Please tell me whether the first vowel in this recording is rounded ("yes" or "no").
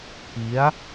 no